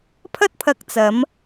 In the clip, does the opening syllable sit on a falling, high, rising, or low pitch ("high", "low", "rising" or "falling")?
high